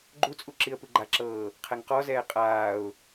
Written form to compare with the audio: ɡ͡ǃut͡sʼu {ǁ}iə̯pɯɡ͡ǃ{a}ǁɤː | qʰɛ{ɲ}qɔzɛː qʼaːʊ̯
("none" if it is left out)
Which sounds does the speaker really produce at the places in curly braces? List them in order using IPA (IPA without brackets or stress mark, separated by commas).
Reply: ǁ, a, ŋ